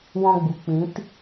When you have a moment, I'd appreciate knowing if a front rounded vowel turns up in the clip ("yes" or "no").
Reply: no